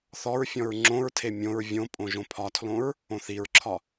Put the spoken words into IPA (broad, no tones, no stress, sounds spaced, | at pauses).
θ ɔ ɹ fʲ ɔ̃ ɹ ŋ͡ǁ õ ɹ tʰ e mʲ õ ɹ vʲ õ pʼ õ ʒ õ pʰ ɒ tʰ l õ ɹ | õ θ i ɹ ǁʰ ɒ